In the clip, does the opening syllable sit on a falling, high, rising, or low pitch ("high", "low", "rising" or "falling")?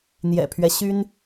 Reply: low